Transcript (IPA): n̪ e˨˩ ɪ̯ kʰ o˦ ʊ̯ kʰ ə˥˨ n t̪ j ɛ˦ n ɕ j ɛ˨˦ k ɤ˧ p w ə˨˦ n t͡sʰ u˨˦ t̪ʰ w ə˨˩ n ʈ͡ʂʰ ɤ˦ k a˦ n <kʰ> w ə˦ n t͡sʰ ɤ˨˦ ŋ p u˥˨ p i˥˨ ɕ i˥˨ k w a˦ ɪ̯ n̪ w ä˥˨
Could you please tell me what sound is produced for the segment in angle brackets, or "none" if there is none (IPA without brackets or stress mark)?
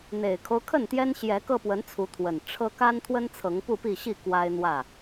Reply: t̪ʰ